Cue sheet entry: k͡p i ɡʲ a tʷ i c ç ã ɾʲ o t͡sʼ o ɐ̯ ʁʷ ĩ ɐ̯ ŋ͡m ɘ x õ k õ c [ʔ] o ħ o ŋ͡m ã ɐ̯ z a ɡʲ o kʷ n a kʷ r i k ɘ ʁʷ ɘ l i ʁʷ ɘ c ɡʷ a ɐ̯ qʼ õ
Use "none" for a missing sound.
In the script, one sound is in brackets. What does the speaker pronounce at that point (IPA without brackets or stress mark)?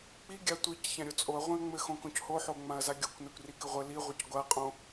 h